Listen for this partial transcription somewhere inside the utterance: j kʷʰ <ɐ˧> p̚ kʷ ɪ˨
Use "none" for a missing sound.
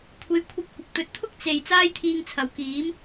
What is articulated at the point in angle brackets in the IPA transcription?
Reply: ɐ˧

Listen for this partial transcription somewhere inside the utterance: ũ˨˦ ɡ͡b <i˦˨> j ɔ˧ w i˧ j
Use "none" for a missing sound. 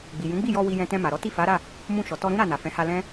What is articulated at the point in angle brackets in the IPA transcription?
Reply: i˦˨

